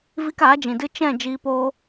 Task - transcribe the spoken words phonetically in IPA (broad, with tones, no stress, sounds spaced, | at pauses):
v i˧ k aː˨˦ d͡ʒ ĩ˨ d ɨ˧ t͡ʃ ɛ̃˦˨ d͡ʒ iː˧ p oː˦